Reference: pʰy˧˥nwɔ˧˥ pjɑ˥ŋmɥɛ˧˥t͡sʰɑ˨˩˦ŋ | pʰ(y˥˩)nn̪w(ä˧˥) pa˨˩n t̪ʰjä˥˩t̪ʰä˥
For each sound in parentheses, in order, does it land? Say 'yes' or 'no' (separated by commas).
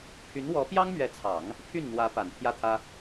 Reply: yes, yes